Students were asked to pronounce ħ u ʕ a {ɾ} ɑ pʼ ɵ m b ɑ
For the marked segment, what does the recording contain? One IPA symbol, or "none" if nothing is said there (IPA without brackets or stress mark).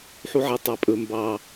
tˤ